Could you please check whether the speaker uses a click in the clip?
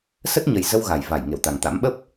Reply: no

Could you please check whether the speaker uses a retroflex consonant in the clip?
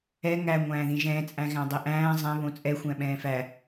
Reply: no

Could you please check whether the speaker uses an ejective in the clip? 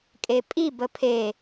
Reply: yes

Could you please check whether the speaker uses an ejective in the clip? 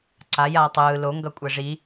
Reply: yes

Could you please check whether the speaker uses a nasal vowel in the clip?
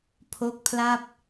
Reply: no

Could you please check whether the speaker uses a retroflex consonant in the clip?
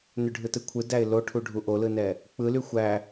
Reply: yes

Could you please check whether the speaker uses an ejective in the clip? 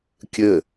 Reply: no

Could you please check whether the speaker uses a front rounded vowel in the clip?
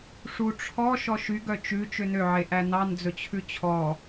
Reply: yes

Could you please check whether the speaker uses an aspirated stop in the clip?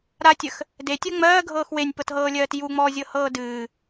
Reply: no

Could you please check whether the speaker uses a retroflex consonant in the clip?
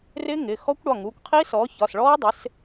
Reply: yes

